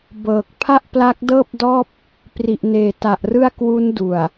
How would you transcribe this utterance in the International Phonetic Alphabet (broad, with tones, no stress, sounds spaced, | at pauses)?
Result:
b ɤː˨˩ k̚ pʰ a˥˩ ʔ p l a˦˥ k̚ d ɤː˥˩ p̚ d ɔː˥˩ p̚ | p r i˨˩ ʔ n eː˨˩ t a˨˩ ʔ r ɯ˥˩ a̯ k w u˦˥ n d u˨˩ a̯